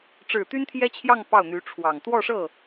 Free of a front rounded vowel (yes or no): no